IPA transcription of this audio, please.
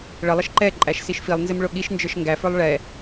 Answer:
ɭ ə lˠ ə ʃ ǃ ɛ ǃʼ æ ʃ s i ʃ f i lˠ n z ɪ m ɭ ʊ ɠ i ʃ n d͡ʒ ə˞ ʃ ŋ ɡ æ f ə˞ lˠ ɭ ɛ

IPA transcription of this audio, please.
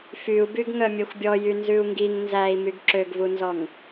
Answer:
f y u̯ b y ɡ ŋ œ mʲ ɛ xʷ bʲ ɔ j y n z ʉ u̯ ŋ ɡ i ŋ n z æ i̯ m y ɡ ǁ ø ɡ v u n z ɔ ŋ

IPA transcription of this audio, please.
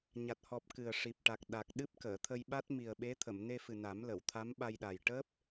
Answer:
ɲ a˨˩ t̚ h ɔ˨˩ p̚ k ɨ˨˩ ə̯ ʂ i˨˩ p̚ ʈ a˨˩ k̚ ɗ a˨˩ k̚ ɗ ɨ˦˥ p̚ k əː˨˩˨ t̪ʰ ə˧ j ɓ a˦˥ t̚ m i˨˩ ə̯ ɓ e˧˥ t̪ʰ ə˨˩˨ m n e˧ f ɨ˨˩ n a˨˩˦ m l ə˨˩˨ w t̪ʰ a˧˥ m ɓ a˧ j ɗ a˨˩ j ʈ əː˦˥ p̚

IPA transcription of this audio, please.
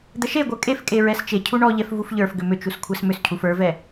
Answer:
d̪ ə ʃ e ɡʷ ə˞ kʼ e f kʼ e ɹ ɛ s t͡ʃ e cʰ u ɳ ɔ ʎ ɛ f v u f ʎ ə˞ f ɡ ʏ m ʏ t͡ʃ u s kʷʰ ɛ s m ʏ s cʰ u f ə˞ v ɛ

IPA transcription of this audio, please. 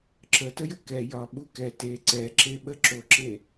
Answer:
ǁ ə t ə j ə k ɛ j ɒ ɓ u k ɛ t e ǀ ɛ ǁ e ɓ ə ǁ o ǁ e

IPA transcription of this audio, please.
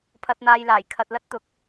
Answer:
pʰ ɐ˨ t̚ n̪ aː˨ j l aː˨˩ j kʰ ɐ˧ t̚ l ɐ˥ t̚ t̪ ʊ˨˥ k̚

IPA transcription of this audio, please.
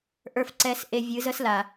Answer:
ʔ ə˞˨ f ǀ ɛ˨ s ʔ e˨ vʲ ɨ˨˦ z ə˦ s l a˨

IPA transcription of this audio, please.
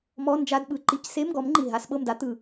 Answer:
m ɔ˧˥˧ n d͡ʒ a˧˥˧ d ɓ ɯ˨˦ ǃ i˨˦ c s e˧˥˧ m ɡ ɔ˨˦ m ŋ͡ǃ i˨˩ ɦ a˧˥˧ s ɓ ɤ˥˨ m d a˦˥ t̪ ɯ˨˩

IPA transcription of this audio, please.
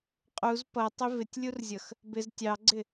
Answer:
qʼ u z p ʌ tˤ ɪ v ɪ tʲ lʲ u r zʲ ʌ x | b ɪ z tʲ ɑ ɡ͡ǀ ɪ

